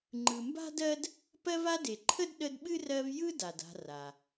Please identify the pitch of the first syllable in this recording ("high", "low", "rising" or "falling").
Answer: low